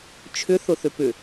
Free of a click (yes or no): yes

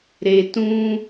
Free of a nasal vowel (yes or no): no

